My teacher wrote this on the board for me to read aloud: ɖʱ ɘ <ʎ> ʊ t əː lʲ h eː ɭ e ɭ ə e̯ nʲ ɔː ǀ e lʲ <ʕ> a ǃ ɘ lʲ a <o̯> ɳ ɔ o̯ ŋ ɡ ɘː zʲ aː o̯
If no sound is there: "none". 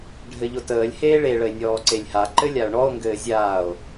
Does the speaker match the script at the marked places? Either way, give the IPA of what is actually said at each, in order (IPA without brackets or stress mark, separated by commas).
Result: ʎ, h, o̯